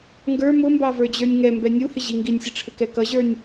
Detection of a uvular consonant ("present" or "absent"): absent